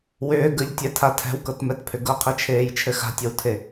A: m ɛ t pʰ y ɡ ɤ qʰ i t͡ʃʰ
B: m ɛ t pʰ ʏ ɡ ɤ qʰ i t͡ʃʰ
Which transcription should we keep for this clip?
B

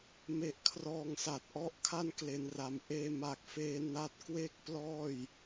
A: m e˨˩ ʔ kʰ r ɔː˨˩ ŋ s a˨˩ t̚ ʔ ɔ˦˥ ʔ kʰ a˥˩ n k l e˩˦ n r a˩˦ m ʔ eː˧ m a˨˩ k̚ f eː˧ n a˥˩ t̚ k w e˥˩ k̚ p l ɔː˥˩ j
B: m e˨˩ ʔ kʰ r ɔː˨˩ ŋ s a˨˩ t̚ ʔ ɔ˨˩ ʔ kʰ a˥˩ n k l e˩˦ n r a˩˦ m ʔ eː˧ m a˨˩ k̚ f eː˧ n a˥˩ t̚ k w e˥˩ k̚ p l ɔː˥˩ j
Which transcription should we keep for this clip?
A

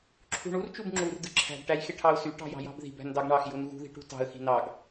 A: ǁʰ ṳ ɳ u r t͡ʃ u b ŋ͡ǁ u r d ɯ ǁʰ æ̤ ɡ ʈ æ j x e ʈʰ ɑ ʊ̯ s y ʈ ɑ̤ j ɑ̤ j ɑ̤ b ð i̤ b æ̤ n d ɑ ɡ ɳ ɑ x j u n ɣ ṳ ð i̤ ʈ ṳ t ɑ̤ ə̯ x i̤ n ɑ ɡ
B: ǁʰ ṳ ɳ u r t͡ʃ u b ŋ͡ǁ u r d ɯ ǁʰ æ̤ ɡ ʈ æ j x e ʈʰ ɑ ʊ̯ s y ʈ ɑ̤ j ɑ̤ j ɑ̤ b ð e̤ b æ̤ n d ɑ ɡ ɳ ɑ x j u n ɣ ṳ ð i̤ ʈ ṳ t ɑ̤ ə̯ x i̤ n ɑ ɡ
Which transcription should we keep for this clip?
A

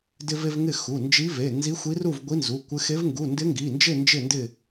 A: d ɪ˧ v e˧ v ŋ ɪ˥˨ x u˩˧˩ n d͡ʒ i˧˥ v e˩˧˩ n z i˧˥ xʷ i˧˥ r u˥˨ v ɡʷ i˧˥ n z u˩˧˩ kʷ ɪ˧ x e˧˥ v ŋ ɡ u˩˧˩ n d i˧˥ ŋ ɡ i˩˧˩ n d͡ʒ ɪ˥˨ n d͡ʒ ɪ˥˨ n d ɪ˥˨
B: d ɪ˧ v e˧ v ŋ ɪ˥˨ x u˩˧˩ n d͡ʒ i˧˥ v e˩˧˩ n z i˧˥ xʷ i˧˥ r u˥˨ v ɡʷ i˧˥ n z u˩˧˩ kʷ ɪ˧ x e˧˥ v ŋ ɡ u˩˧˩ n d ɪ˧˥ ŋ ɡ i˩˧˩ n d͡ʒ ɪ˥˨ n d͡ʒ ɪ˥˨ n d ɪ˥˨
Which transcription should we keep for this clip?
B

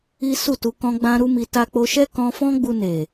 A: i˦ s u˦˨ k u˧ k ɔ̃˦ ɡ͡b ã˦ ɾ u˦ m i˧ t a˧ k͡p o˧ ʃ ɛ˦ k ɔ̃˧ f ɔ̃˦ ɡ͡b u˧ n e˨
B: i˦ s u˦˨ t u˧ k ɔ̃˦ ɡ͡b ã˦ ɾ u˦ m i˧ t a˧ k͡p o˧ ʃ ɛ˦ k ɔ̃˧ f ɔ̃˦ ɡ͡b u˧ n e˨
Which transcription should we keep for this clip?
B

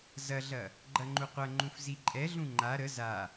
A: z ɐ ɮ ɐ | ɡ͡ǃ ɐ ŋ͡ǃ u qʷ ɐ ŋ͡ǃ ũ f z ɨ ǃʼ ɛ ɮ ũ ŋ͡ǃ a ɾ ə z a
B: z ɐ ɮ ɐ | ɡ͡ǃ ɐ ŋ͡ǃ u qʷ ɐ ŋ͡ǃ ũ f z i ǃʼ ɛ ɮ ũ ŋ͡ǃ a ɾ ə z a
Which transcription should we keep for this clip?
B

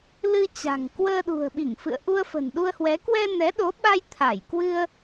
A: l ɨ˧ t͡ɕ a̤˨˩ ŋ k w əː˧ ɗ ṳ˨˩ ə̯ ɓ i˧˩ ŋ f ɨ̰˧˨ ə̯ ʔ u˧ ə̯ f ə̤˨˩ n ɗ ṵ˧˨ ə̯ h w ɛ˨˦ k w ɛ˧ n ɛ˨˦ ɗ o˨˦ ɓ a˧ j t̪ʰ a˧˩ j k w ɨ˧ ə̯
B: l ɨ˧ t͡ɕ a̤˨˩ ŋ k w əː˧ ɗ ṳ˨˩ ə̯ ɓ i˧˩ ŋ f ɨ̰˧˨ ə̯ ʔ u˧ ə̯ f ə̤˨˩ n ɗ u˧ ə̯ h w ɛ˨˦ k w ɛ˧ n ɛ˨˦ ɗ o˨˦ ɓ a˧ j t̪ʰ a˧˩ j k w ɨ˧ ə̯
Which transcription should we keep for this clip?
B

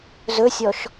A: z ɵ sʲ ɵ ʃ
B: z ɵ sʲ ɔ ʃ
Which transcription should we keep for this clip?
B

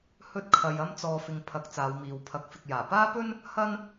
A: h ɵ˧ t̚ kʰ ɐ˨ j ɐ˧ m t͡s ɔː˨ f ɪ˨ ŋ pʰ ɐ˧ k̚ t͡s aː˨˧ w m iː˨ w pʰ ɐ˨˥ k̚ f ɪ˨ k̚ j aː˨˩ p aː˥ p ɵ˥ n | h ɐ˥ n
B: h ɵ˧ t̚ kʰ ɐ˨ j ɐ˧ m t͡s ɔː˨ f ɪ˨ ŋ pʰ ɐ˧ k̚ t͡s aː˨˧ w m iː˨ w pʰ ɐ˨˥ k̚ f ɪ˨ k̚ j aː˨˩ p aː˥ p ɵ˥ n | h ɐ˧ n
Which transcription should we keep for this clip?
A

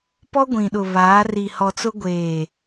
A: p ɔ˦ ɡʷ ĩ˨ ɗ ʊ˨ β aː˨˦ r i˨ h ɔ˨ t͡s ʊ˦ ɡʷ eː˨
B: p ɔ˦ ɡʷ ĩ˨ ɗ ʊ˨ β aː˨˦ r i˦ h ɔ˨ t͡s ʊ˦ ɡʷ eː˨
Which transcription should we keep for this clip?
A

